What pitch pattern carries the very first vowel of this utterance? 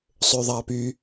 high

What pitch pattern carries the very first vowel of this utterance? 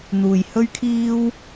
low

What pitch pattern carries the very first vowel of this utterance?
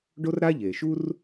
high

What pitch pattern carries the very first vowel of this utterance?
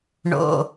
low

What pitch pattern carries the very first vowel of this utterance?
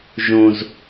low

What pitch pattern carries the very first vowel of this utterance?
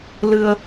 low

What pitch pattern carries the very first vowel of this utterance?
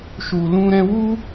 low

